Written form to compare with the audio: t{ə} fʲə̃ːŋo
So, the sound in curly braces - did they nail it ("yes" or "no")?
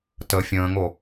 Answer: yes